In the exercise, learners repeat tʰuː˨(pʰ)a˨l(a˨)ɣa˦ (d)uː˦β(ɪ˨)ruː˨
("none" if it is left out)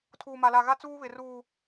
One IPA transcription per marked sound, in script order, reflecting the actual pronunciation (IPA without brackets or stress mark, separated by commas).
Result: m, a˨, t͡s, ɪ˨